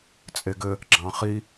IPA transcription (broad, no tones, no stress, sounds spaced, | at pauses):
t͡sʼ e ɡ ɘ | ɡ͡ǁ ɑ̃ χ i